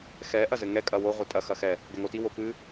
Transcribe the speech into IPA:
x ɛ ʔ ɐ z ɘ ŋ ɛ kʼ ɐ w o ʁʷ ɘ tʼ ɐ x ɐ x ɛ | ɡ ɛ ŋ o t i w o p ɨ

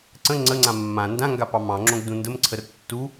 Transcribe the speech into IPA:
ǀ ə̃ ŋ͡ǀ ə ŋ͡ǀ ã mː ã n d ã ŋ ɡ a p ɑ m ɑ̃ ŋ͡ǁ õ ɡ d ũ n d ə m ǀʰ ə r tː u

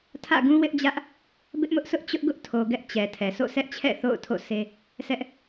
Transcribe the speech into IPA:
tʰ ä̰˦˨ ɡ ũ˦ w ɪ˦ ʔ d͡ʑ ä˦ ʔ | b ɪ˦ ʔ m ʊ˦ ʔ s ʊ˦ ʔ t͡ɕ ʊ˦ ʔ ɡ ʊ˦ ʔ tʰ o˨ ɡ ɛ˦ ʔ t͡ɕ ɛ˨ tʰ ɛ˨ s o̰˦˨ sʰ ɛ˦ ʔ t͡ɕʰ ɛ̰˦˨ θ o̰˦˨ ʊ̯ tʰ o̰˦˨ s e˦ | s ɛ˦ ʔ

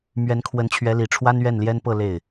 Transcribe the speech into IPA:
m ɥ ɛ˧˥ n kʰ w ə˧˥ n t͡ɕʰ ɥ ɛ˧˥ l i˨˩ ʈ͡ʂʰ w a˥ n ɥ ɛ˥˩ n l j ɛ˥ n p ɤ˥˧ l e˥˩ ɪ̯

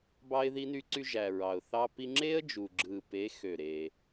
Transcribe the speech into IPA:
b ɑ˦ ɪ̯ ð i˦ n y˦ ǀ y˦ ʒ æ˨ ɹ ɑ˨ ʊ̯ θ ɑ˦ p i˦ ŋ͡ǁ e˦ ə̯ d͡ʒ u˨ ɡ͡ǁ ɯ˨ p e˨˦ x ø˦˨ ɾ e˦

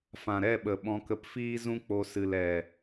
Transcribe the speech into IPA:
f ã˨ ɾ ɛ˦˨ ɓ ə˨ ɓ ɔ̃˧ k ə˧ p f iː˦ z ũ˦ k͡p o˧ s ɨ˨ l ɛ˨

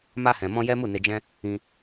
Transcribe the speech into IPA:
m a˧ h ɛ̃˨ m ɔ̃˧ j ɛ˦ m u˦˨ n e˧ d͡ʒ ɛ̃˦ | ĩ˧

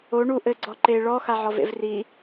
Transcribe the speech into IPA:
o ɳ u ʔ ɘ ɡ͡ǀ ɔ ǃ e ɭ ɔ x a ʕ ɔ v ḛ v r i

